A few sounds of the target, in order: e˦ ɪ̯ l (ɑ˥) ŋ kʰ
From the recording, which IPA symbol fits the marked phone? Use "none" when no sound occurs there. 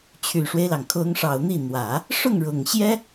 ɑ˩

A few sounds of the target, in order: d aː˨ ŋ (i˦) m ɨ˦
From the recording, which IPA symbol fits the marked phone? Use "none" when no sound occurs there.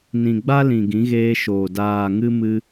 ɨ˦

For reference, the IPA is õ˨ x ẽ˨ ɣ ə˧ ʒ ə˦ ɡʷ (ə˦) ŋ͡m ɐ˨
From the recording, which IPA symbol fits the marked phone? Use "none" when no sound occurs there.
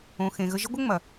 ə˦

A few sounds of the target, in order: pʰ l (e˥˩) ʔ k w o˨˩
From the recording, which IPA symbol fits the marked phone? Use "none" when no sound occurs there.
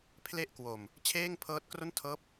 e˥˩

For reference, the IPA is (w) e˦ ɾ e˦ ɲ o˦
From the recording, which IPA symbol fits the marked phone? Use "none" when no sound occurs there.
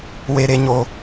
w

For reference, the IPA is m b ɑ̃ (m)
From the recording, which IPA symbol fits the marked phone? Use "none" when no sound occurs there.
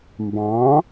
none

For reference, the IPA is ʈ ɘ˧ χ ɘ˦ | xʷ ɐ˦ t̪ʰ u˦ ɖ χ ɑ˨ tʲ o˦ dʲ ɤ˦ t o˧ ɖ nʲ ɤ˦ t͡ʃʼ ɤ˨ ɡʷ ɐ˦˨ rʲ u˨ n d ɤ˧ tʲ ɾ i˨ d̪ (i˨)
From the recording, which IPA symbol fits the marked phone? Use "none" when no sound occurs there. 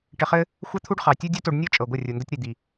i˨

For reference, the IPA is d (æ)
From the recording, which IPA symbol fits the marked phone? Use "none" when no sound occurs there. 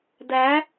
æ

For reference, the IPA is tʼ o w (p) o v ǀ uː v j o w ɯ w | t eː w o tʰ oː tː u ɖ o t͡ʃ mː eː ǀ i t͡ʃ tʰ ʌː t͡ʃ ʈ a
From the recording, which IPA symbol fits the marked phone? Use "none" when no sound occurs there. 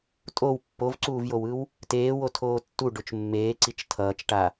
pː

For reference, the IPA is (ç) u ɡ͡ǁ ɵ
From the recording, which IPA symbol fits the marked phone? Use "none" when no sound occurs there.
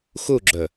x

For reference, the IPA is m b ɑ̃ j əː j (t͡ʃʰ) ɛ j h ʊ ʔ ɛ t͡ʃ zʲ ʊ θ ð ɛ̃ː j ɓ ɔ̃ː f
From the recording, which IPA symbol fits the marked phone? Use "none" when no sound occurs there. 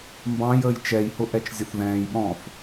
t͡ʃ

